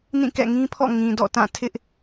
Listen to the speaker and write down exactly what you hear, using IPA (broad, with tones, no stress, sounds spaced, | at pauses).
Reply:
n ĩ˦˨ k ɛ̰˦˨ ŋ ĩ˦ pʰ ɔ̰˦˨ ŋ ĩ˨ d ɔ̰˦˨ t ã˦˨ tʰ ɪ˦ ʔ